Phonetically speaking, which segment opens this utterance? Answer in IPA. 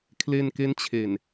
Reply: kʰ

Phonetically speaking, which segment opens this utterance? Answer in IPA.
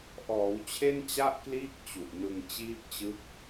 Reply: ʔ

